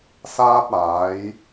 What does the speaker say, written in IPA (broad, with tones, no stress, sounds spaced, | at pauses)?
s aː˥ t̚ aː˨˥ j